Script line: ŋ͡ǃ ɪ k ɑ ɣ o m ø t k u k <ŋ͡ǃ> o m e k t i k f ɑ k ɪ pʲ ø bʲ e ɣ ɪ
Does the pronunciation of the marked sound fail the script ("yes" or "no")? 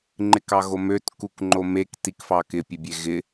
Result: no